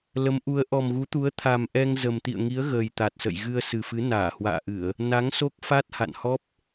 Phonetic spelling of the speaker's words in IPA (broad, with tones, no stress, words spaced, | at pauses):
lə˨˦mʔu˨˦ə̯ ʔɔ˨˩mɣu˨˦t̪u˨˦ə̯ t̪ʰa˨˩mʔɛ˧ŋ zə˨˩mt̪ḭ˧˨ə̯ŋi˨˦ə̯ɣəː˨˩j t̪a˨˩t̚sə̰˧˨j ɣɨ˧ə̯sɨ˨˩fɨ˨˦ naː˧˩hwa̰ː˧˨ʔɨ˧˩˨ə̯ | na˨˦ŋso˦˥k̚fa˦˥t̚ ha̰˧˨nhɔ˦˥p̚